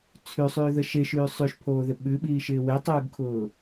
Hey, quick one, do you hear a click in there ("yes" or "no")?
no